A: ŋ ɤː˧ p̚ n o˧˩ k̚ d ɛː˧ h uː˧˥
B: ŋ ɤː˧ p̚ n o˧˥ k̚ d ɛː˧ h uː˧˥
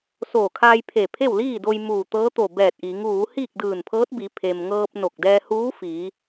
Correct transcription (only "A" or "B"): A